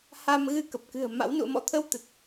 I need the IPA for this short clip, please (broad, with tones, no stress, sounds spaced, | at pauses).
h a˧ m ɣ ɨ˧ k ə˨˩ p̚ k ɨ̤˨˩ ə̯ m a̰˧˥ w n ṵ˧˨ ə̯ m ɔ̰˧˥ t̪ʰ ə˧ w t̪ ə˨˩ t̚